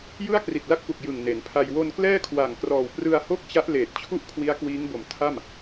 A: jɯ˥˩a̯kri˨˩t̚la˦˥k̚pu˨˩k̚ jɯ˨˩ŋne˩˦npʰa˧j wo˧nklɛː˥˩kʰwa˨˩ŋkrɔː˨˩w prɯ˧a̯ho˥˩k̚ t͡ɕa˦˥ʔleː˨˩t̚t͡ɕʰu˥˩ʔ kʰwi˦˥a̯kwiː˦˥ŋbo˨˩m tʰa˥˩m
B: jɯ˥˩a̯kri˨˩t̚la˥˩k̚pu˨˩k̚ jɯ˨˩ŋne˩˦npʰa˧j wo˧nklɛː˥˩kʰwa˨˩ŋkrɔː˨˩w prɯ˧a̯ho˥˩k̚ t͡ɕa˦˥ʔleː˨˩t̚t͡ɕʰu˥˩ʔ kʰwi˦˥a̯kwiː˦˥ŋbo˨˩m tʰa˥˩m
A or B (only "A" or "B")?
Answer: B